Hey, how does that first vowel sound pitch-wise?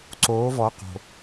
rising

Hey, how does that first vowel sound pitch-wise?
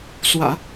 low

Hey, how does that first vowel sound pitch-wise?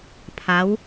rising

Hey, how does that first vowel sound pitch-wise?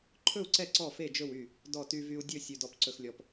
falling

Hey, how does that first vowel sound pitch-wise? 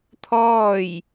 falling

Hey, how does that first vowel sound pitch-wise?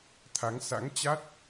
rising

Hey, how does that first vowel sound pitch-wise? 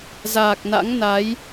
low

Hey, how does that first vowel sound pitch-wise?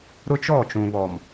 high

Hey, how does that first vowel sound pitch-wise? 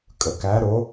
rising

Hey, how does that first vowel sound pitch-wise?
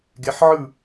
rising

